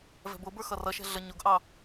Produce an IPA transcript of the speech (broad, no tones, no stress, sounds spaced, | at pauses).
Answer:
v ɛ̤ b ʊ b ə˞ x ʌ r ʌ ʃ ɛ̤ ɮ ə ɲ ʊ ɡ ʔ ɑ